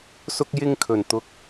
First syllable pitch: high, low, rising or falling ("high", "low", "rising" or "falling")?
high